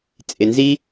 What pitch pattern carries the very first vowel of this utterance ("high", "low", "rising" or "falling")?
low